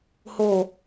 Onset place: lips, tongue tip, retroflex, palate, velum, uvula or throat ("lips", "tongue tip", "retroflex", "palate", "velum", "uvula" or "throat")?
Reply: throat